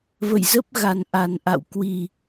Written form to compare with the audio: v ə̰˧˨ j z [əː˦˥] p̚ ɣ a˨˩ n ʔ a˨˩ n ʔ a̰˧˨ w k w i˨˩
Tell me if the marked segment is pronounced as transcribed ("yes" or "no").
no